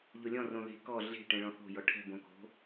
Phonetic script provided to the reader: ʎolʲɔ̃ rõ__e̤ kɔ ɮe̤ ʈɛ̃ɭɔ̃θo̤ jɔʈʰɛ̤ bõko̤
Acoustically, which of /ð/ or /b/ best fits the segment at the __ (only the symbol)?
ð